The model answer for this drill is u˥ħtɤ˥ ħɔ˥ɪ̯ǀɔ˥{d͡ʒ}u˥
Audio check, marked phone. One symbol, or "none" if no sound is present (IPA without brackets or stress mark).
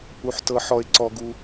ɡ